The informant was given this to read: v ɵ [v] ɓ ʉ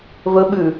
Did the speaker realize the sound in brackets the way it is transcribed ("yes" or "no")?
no